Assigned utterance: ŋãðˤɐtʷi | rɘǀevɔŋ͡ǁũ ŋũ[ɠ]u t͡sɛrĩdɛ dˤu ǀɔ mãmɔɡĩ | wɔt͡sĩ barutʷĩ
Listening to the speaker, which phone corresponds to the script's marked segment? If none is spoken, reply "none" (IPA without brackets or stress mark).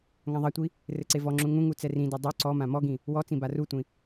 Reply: ŋ